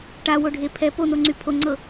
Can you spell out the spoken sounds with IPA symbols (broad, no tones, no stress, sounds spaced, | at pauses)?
ʈ a w o ɖʱ e pʰ ɛ p o n o ŋ͡ǀ y pʰ o ŋ͡ǀ ɤ